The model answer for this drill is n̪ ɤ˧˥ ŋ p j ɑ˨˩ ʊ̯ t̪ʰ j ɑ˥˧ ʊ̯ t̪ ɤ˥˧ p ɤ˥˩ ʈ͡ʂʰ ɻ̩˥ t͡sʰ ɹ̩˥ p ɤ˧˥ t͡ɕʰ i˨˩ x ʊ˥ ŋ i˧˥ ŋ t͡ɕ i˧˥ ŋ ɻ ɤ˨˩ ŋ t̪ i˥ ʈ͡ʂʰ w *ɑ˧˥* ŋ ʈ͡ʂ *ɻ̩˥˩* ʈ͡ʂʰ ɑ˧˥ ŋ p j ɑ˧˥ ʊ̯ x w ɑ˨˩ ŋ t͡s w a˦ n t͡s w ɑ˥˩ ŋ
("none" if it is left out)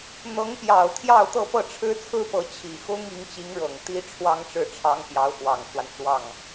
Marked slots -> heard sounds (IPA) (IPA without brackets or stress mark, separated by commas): ɑ˥, ɻ̩˥˩